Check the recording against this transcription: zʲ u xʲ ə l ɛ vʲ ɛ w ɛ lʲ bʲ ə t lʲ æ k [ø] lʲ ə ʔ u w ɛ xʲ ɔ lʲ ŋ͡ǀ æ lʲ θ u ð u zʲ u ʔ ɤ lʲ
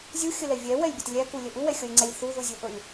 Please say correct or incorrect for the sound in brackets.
incorrect